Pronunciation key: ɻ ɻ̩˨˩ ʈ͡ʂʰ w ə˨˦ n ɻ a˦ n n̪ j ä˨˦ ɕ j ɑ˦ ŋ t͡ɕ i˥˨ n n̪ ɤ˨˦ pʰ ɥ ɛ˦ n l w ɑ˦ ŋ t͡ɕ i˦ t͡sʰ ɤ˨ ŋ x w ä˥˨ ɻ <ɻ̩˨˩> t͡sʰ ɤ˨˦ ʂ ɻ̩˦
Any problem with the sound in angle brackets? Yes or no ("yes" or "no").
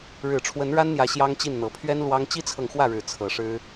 no